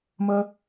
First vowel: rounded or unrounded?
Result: unrounded